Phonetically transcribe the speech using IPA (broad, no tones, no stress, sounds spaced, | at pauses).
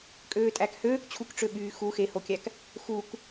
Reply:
kʼ øː tʼ æ k h øː k t͡ɕʰ u k ʈ͡ʂ ø ɓ yː x u x e h o kʲ æ k | x u k